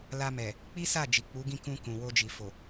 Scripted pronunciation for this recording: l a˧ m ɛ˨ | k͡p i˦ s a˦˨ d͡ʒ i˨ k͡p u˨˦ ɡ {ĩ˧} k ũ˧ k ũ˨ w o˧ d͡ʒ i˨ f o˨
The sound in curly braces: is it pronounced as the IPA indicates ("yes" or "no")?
no